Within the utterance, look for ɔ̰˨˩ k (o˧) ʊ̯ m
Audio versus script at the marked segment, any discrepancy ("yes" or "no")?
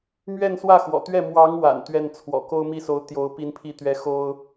yes